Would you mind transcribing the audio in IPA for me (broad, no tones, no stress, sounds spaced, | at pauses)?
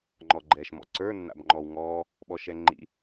ŋ͡ǃ ɔ ɡ͡ǃ ɛː ʃ m ɔ̰ ǀ ə˞ nː a̰ b ŋ͡ǃ ɔ w ŋ ɔː | ɓ ɔ ʃ ɛ ŋ͡ǃ ḭ